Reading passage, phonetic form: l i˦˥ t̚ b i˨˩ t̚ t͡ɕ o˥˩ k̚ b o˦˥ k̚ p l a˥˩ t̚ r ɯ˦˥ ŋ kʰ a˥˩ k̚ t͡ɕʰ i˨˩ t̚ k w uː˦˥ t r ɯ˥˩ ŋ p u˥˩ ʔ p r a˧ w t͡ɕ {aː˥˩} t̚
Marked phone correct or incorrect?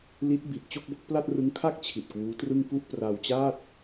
correct